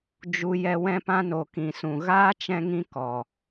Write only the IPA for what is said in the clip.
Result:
d͡ʒ u˨ j ɛ˨ w ɛ̃˧ p ã˧ n o˨ k ĩ˨ s ũ˨ ɣ aː˦ t͡ʃ ɛ̃˧ ŋ ĩ˧ k ɔ˨

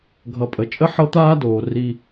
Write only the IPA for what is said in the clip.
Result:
ɡʱ ʌ˨ pʼ ə˨ t͡ʃʼ ə˦ ħ ɤ˦ t̪ aː˦ d oː˨ r i˦

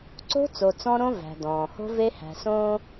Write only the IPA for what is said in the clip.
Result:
ǀ o̤˦ t͡s o˨ t͡s ɔ̃˦ ɾ õ˦ v æ̤˨ d ɔ̃ː˨ h o̤˦ v e˦ h æ̤˨ s õː˦

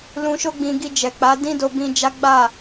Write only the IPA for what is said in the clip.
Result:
l ũ˧ ʃ o˦ ɡ͡b ĩ˧ ɡ i˧ d͡ʒ ɛ˨ k͡p a˨˦ d ĩ˦ d o˧ b ĩ˧ d͡ʒ a˦ ɡ͡b a˦˨

